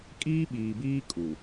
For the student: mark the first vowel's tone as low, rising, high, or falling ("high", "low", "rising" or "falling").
high